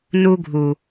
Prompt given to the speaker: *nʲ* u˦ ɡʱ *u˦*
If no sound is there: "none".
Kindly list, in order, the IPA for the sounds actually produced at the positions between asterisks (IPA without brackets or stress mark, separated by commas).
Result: n, u˨